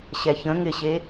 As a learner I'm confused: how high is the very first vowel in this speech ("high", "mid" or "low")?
mid